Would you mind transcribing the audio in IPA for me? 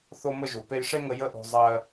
θo˥mə˥ʒu˨pe˥j ʂe˥ŋə˦ jə˥ʔo̤˦ zˤɜ˦

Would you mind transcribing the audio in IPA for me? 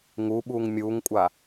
ŋuɓuːŋ mʲuːŋkʷʼa

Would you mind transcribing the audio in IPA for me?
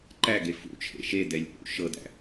ǃæɡe fṵt͡ʃʰḛ ʃedɛlʲ ʔṵ ʃɤdæ̰

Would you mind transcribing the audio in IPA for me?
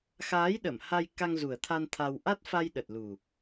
xaː˨˦j ɗə˧˩mha˧j ka˧ŋzu˨˩ə̯t̪ʰa˧n t̪ʰa˧w ʔa˦˥t̚fa˧j ɗə˨˩t̚lu˨˩

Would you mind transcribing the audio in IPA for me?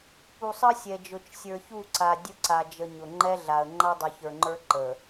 pu˨sˤə˦ sʲɛ˨ d͡ʒʊ˨t͡ʃsʲə˞˨çu˦˨ǀa˨ dʲʊ˦ǀa˨d͡ʒə˨ ɲʊ˨ŋ͡ǃɛ˦ɮa˨ə̯ ŋ͡ǃa˦dˤʊ˨çə˞˨ŋ͡ǃə˞˦ ǃə˨

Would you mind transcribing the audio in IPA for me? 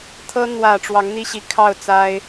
t̪ʰɤ˥ n̪wä˨˩ ʈ͡ʂwɑ˧˥ŋn̪i˥ɕi˧˥ kʰɑ˥˩ʊ̯t͡sa˥ɪ̯

